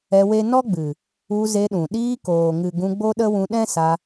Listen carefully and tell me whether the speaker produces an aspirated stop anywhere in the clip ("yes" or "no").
no